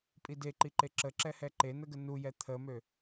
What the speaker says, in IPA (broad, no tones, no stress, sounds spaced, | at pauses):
pʼ i d e ǃ i ǃ e ǁ ə ǁ ɛ h ɛ ǃ e n ə ɡ ə n u j ɛ t̪ʰ ə m ø